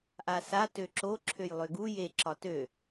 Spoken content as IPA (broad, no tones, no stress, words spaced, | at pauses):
ʔasa tøǁo ǁʰøjlˠøɡu je ǁɒtø